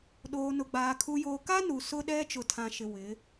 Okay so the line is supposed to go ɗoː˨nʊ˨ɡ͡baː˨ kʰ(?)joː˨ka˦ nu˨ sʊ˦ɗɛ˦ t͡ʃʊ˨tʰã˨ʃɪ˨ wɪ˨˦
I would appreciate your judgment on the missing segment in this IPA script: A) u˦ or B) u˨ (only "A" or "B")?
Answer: B